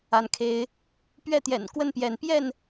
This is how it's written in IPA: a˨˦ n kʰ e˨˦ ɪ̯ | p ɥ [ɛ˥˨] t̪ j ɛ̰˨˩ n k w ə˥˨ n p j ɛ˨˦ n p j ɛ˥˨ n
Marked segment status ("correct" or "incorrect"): correct